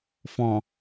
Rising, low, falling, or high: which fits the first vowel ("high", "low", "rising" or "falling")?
low